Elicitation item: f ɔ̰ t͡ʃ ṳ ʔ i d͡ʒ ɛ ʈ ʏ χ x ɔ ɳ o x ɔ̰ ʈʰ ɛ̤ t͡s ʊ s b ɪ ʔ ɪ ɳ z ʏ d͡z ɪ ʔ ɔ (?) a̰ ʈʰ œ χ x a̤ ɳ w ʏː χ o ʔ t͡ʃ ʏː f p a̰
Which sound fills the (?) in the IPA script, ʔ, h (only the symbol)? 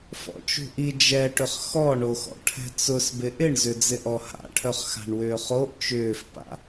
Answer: h